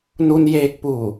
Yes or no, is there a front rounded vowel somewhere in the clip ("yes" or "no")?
no